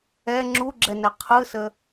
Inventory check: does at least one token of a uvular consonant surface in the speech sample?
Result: yes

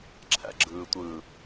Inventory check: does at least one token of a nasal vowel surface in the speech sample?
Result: no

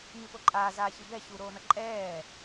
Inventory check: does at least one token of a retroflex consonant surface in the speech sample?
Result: no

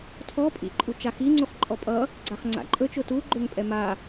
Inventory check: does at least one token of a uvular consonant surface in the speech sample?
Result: yes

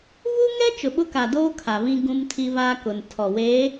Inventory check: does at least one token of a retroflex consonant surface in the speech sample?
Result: no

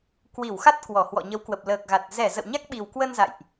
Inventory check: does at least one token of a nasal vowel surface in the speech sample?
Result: no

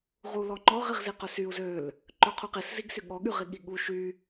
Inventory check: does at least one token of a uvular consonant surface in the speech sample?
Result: yes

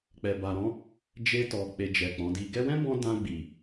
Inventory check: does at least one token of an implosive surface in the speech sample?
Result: no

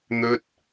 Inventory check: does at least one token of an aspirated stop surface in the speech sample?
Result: no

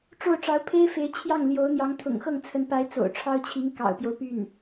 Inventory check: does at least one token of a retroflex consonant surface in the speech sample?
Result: yes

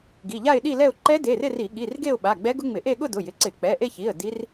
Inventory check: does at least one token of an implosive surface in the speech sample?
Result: yes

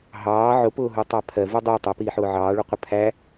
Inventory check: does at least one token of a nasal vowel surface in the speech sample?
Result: no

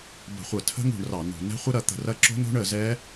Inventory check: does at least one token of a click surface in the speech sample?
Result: yes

